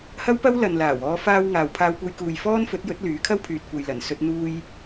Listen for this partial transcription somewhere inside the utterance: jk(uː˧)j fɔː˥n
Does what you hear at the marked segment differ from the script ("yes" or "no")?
yes